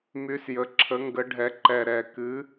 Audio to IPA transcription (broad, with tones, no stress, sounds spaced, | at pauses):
m y˨˥ s j ə˨˩ ǁʰ ə˨˥ ŋ ɡ ə˨˥ ɖʱ ɛ˨˥ ǃ ɛ˨˩ ɾ ɛ˨˩ k ɨ˨˥